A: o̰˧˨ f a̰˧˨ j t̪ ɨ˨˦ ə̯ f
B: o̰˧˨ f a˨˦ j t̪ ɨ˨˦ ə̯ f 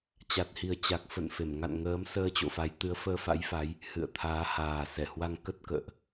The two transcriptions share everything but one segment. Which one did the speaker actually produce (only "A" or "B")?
B